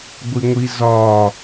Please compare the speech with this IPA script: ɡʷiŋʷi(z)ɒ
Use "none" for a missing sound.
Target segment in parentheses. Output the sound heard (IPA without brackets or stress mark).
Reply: z